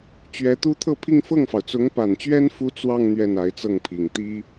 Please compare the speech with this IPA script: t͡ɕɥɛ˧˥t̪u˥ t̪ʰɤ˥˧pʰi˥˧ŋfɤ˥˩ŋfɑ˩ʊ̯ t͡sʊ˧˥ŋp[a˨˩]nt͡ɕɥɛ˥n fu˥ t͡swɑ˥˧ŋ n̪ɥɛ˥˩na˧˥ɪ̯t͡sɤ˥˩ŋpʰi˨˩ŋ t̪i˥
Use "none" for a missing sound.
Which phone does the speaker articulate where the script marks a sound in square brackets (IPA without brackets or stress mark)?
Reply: a˨˩